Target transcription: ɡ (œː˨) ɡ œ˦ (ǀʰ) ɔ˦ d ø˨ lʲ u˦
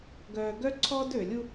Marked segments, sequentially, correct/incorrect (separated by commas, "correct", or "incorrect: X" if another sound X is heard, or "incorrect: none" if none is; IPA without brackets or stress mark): correct, correct